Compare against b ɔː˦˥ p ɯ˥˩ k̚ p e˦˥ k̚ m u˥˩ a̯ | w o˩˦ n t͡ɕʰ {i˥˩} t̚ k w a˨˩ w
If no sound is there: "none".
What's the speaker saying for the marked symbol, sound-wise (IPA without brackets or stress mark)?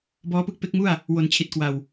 i˨˩